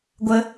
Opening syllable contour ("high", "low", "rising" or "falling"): high